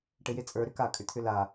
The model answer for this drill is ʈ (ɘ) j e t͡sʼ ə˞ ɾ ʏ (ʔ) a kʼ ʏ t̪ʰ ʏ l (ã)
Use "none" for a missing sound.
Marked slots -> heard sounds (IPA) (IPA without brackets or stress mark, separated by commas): ɘ, k, a